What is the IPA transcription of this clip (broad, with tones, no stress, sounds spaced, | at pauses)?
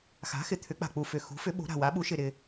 x a̤˩˥ x ɪ˨˩ t̪ʰ ʏ˩˥ k͡p a̤˨˩ k͡p u˨˩ f ʏ˨˩ x ṳ˩˥ f ʏ˩˥ ɓ o̤˩˥ ɾ a̤˨˩ w a˩˥ ɓ u˩˥ ʃ ɪ˨˩ ɾ ɪ˨˩